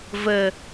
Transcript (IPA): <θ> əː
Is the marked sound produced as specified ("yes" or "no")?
no